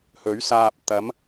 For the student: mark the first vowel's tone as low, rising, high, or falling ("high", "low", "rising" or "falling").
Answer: rising